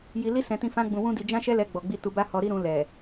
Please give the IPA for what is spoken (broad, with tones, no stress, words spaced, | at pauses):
ji˧li˦ sɛ̃˧tĩ˧ fã˦ɡ͡bũ˧wũ˦di˧ d͡ʒã˦ʃɛ˦ lɛ˧ɡ͡bɔ˨ɡ͡bi˧ tu˧ ba˦hɔ˧ɾi˦ ɾũ˧lɛ˨